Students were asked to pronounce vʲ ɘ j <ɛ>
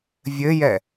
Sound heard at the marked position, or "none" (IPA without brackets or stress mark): ɛ